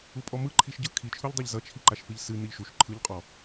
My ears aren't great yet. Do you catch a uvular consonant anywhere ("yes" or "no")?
yes